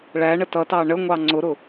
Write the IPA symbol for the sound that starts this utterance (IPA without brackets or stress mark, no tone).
ɭ